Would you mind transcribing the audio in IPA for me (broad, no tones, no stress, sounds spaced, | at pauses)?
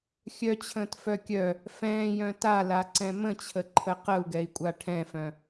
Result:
xʲ œ t͡ɕʰ ə̃ː t f œ kʲ œ | f ɛ̃ː j œ̃ t a l a ǀ ɛ̃ m ə̃ t͡ɕʰ ə ǃʰ ə q ə u̯ ɡ ɛ i̯ kʷʼ a ʈʰ ɛ̃ f œ̃